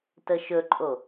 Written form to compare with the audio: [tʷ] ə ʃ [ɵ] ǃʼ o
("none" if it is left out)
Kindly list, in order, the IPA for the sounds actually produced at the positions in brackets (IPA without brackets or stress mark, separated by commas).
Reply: t, ɵ